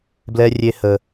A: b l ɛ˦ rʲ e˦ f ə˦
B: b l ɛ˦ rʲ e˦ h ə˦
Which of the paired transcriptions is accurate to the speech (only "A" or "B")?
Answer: B